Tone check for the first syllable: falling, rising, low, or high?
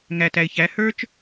low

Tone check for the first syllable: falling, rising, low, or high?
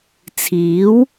rising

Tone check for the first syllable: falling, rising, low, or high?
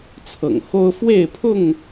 low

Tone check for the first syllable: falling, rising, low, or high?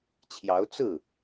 rising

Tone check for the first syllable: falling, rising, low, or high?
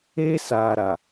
high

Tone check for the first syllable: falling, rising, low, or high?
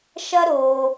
high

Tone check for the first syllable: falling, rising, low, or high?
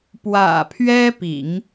low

